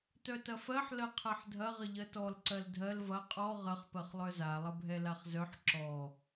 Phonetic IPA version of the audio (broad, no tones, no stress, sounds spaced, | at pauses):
t œ t ɐ f ɜ ħ l ɜ qʰ ɜ ħ dʱ ɐ ʁ ə ʎ ɜ t ɔ l ǀ ɜ l dʱ ɜ l v ɐ qʼ ɔ ʁ ə χ p ɜ χ lˠ œ z a lˠ ə bʱ ɛ l a χ z œ ħ ǁ ɔ